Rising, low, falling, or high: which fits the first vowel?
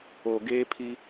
low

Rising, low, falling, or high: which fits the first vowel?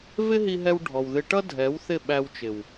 high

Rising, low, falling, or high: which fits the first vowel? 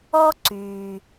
high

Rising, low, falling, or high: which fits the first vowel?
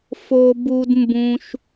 low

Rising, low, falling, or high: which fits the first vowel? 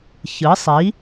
rising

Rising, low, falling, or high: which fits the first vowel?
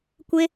high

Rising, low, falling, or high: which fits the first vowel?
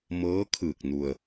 rising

